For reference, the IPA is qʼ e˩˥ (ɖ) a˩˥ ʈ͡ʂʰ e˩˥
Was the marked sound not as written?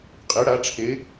yes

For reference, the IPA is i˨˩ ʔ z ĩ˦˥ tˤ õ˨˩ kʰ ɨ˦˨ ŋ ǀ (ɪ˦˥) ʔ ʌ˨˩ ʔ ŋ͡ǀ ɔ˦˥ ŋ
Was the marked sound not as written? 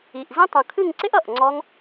no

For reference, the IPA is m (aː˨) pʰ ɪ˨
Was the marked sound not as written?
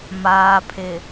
no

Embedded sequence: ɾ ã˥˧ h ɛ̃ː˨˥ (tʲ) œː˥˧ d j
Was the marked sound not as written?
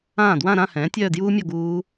no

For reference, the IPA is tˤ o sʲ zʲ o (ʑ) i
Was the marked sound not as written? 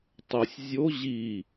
no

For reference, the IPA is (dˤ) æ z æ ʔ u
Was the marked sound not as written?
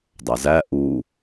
no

